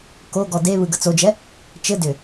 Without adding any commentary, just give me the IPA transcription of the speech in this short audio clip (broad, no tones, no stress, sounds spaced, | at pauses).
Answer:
k o ɡ ɔ d e β ɯ ɡ ə t͡s o d͡ʒ ɛ | t͡ʃ ɘ d ʏ